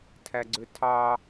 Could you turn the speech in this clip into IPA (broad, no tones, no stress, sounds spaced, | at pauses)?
tʰ æ ɡ͡ǀ ø tʰ ɑ